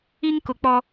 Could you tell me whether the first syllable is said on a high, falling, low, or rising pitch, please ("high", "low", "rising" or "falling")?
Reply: high